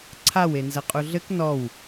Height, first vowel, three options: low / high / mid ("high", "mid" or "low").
low